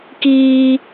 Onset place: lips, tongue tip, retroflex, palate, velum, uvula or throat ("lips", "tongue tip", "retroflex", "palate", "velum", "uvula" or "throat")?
velum